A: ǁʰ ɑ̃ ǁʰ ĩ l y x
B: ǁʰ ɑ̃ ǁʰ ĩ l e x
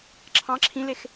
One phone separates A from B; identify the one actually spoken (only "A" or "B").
B